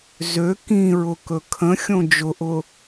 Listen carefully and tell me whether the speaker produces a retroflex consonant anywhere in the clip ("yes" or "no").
no